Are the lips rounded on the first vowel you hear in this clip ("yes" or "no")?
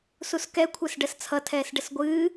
yes